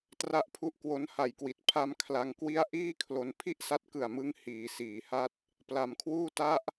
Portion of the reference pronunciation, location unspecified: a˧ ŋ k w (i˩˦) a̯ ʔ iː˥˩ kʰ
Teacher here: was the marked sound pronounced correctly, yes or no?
no